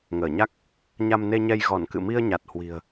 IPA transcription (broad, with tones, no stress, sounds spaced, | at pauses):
ŋ əː˧˩ ɲ a˦˥ k̚ | ɲ a˧ m n e˧ ɲ ɛ˧ j ɣ ɔ˧˩ n k ɨ̰˧˨ m i˧ ə̯ ɲ a˨˩ t̚ h w i̤˨˩ ə̯